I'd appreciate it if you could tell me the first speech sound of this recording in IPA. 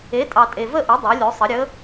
e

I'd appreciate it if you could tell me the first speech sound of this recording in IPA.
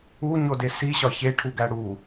u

